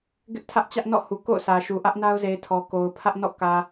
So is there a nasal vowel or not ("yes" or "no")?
no